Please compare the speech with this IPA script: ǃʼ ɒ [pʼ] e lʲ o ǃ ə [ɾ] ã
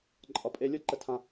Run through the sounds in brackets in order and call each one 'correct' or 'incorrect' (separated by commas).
correct, incorrect